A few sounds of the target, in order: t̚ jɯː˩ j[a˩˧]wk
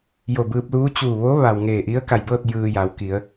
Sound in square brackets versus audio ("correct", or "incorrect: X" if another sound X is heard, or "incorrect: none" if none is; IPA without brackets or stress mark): correct